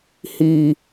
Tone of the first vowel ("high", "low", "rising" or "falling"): low